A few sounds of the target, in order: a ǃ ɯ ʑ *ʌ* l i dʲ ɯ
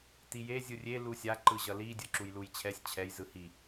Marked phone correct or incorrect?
correct